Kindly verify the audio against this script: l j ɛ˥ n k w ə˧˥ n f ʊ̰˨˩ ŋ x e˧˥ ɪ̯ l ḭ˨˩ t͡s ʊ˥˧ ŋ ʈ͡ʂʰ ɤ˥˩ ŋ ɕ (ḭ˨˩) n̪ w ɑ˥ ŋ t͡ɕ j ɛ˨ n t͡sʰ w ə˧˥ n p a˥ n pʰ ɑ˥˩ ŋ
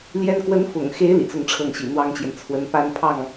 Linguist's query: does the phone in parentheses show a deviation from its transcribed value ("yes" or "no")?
no